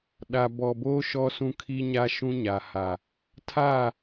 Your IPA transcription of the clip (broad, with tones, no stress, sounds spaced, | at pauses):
ɗ a˨ b ɔ˨ b oː˦ ʃ ɔ˦ s ũ˦ kʰ i˦ ɲ a˦ ʃ ũ˦ ɲ a˨ h a˨ | tʰ a˦˨